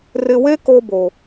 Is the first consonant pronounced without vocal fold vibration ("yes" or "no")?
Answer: no